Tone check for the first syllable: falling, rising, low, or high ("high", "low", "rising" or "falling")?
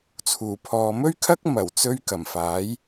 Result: low